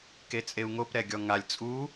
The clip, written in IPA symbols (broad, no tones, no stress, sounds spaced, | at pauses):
k e t͡sʼ e u̯ ŋ o p ɾ ɛ ɡʲ ɔ ŋ a lʲ t͡sʼ u